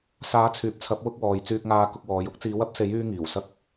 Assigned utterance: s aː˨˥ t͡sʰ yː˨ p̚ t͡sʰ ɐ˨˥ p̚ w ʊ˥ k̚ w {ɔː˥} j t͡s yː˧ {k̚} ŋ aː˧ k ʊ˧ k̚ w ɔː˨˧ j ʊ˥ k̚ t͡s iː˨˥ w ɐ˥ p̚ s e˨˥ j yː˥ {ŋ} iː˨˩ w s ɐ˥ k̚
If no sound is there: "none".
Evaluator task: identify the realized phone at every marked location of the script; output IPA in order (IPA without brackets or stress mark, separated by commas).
ɔː˨, k̚, ŋ